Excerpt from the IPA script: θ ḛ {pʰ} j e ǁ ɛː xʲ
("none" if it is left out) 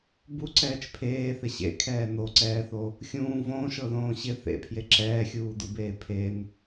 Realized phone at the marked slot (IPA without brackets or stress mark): pʰ